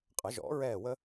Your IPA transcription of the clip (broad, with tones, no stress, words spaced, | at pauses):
qʼə˨˩˦ʒɔ̰˨˩˦ɹɛː˦˨ wə˥